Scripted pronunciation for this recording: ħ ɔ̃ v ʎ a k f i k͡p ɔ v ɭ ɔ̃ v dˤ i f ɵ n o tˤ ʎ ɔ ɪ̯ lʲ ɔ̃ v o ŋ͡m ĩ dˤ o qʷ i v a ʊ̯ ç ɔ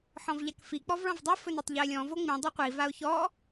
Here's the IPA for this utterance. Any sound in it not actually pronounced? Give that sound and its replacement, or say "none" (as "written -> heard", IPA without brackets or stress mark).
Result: none